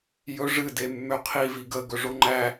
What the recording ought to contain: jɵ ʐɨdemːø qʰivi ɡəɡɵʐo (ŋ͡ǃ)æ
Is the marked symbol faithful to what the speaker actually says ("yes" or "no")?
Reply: yes